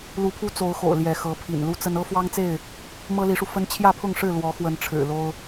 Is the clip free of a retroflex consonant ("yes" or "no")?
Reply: no